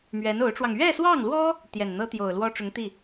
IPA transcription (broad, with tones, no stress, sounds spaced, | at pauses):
m ɥ ɛ˧˥ n o˧˥ ʊ̯ ʈ͡ʂ w ɑ˧ ŋ ɥ ɛ˥˧ s w ɑ˥˩ ŋ l w ɔ˥ | t̪ j ɛ˨˩ n n̪ ɤ˥ t̪ j o˨˩ ʊ̯ l w ɔ˥ ʈ͡ʂ ʊ˧˥ ŋ t̪ i˥˩